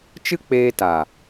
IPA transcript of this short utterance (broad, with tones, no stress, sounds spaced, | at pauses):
t͡ʃ ɨ˦ k͡p eː˧ t a˨